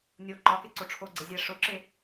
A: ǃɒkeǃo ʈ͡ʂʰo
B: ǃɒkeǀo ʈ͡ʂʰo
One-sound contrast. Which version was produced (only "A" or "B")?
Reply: B